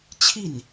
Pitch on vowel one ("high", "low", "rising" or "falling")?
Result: falling